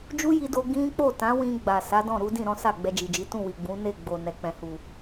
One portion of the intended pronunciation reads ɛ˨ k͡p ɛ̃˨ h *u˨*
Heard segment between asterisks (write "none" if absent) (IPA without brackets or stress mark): u˨